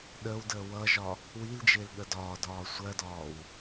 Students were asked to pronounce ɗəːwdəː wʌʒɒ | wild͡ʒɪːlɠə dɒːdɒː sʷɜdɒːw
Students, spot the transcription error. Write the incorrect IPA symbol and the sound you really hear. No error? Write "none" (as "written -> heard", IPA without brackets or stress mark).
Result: none